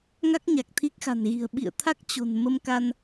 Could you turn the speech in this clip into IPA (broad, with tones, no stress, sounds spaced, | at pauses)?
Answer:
ŋ a˦˥ k̚ ɲ a˨˩ k̚ t̪ʰ i˦˥ k̚ x a̤˨˩ n ɣ i̤˨˩ ə̯ ɓ ḭ˧˨ ə̯ t̪ʰ a˦˥ k̚ t͡ɕ o̤˨˩ n m ə˧ m k a˧ n